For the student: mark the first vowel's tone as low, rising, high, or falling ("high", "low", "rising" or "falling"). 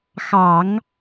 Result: low